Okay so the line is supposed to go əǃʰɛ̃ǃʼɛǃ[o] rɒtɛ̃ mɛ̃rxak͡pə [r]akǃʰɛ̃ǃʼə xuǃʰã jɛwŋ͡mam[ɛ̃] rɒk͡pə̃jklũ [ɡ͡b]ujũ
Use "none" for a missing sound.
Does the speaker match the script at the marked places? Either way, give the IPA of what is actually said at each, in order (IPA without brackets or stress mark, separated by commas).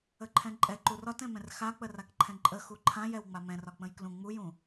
u, r, ɛ̃, ŋ͡m